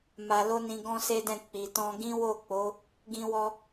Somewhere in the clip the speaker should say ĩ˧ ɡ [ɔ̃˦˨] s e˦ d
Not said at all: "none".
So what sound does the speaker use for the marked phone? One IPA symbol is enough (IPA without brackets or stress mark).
ɔ̃˦